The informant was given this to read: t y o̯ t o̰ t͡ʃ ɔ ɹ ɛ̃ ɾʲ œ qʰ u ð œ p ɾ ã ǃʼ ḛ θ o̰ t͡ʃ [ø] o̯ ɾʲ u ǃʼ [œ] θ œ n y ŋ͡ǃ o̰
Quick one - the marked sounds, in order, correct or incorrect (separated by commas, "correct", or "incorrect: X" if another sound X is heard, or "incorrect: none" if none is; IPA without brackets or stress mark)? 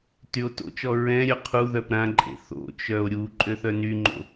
incorrect: œ, incorrect: ø